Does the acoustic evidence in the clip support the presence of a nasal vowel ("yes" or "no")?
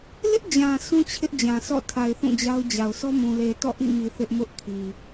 yes